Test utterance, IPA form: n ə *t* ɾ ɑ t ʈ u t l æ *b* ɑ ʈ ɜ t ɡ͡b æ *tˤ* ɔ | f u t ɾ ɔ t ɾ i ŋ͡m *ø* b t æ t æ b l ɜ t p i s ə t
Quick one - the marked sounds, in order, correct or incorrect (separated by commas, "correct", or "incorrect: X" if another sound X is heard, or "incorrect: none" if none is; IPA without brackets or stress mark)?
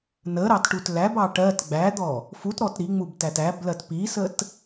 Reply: incorrect: none, correct, incorrect: d̪, incorrect: u